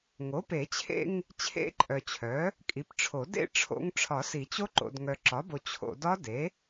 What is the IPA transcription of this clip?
ŋ o˩˥ p e˨˩˦ t͡ɕʰ ḛ˥˧ ŋ | t͡ɕʰ ḛ˦˥ ǃʼ œ˨ t͡ɕʰ œ˩˥ | kʼ i˩˥ p ʈ͡ʂʰ o˨˩˦ d ḛ˥˧ ʈ͡ʂʰ o̰˦˥ ŋ ʈ͡ʂʰ ɒ˨˩˦ s i˨˩˦ t͡ɕ o˦˥ ǃ o̰˨ d ŋ œ˨ ǁ ɒ˩˥ b o˨ t͡ɕʰ o̰˨ d ɒ˦˥ d e˩˥

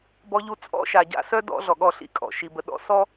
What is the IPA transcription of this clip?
b ɔ˦ ʎ u˦ t͡sʼ ɔ̰˦ ʃ a˨ ɟ a̰˦ s œ˦ d ɔ̰˦ ɮ ɔ˨ ɠ ɔ˦˨ ɬ ḭ˦˨ kʼ ɔ̰˨ ʃ i˨ b ə˨ ɗ ɔ̰˦ s ɔ˦

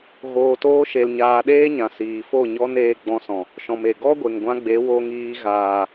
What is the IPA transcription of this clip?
ɣ oː˨ t oː˧ ʃ e˨ l ɲ aː˨ ɗ eː˦ ɲ ã˨ s iː˨ f o˦˨ ɲ ɔ˦ n eː˧ ɡ͡b ɔ̃˧ s ɔ̃˨ | ʃ ɔ̃˨ m e˨ ɡ ɔ˦ ɡʷ e˨ ŋ ɡʷ ã˧ ɡ͡b e˨˦ w o˧ ŋ iː˧ ɣ aː˨

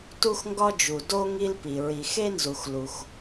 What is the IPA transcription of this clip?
t u˦ x ŋ ɡ ɒ˦ d͡ʒ u˩ d o˦ ŋ i˦ l p i˩ ɹ i˩ x e˦ n z u˩ x l u˩ x

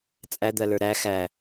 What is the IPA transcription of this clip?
t͡sʼ æ d̪ ɜ l ə˞ ɾ æ x æ

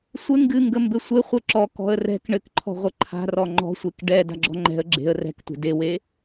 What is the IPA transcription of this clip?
sʷ ɘ ŋ ɡ ɨ ŋ ɡ ə m b ɘ sʷ ɘ χʷ ɘ ǁ ɔ k ɔ̤ ə̯ r ɛ̤ k ɳ ɘ k ǃʰ ɔ̤ ʁʷ ə ǃʰ a̤ r ɔ ŋ͡ǃ ɔ̤ sʷ e k ɖ ɛ d a̤ ɡ͡ǁ ɔ̤ ŋ͡ǃ ɛ̤ ə̯ ɡ͡ǁ e̤ ə̯ r ɛ̤ k tʷ e̤ d e w e

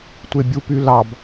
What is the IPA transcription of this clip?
tʷ e bʲ u p y l ɑ b

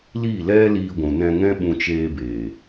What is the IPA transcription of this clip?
l i˦˨ l ɛ˦ l iː˧ ɡʷ ũ˨ n ɛ̃˧ ŋ ɛ̃˦ ɓ ũ˧ t͡ʃ eː˧ b eː˨

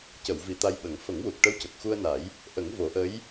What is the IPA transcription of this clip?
c ə˨˩˨ w v i˨˩˨ t̪ a˧ j ɓ ə˨˩˦ ŋ f ə˨˩˦ ŋ w u˨˩ k̚ ʈ ə˧˥ w c ə˨˩ k̚ x u˧ ə̯ n a˨˩˦ j | ʔ ə˨˩˦ ŋ v o˨˩˦ ʔ ə˧˥ j

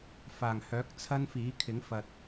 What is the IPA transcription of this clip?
f aː˨˩ ŋ h œː˨˥ k̚ t͡sʰ ɐ˥ n f iː˨˥ kʰ ɪ˨˥ ŋ f ɐ˨ t̚

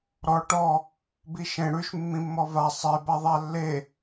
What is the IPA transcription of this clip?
ɾ ɔ ʈ ɔ | b i ʃ ẽ ɽ ʉ ʃ mː ĩ mː ɔ v a sˤ e b a ðˤ a lː e

